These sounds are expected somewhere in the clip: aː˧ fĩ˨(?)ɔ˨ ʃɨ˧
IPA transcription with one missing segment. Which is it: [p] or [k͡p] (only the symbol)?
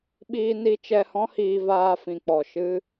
k͡p